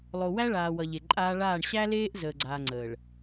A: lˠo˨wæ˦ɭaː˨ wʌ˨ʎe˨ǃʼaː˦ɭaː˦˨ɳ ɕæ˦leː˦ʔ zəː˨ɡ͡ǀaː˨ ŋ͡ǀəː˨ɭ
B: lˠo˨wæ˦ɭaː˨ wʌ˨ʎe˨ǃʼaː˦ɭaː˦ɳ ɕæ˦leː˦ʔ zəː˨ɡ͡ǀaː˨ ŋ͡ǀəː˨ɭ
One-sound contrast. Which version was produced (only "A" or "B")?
A